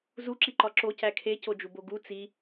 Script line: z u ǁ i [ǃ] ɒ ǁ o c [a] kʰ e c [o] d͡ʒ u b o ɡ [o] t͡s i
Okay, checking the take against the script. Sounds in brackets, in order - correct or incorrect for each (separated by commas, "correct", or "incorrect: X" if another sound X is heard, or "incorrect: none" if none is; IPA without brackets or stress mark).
correct, incorrect: æ, correct, incorrect: u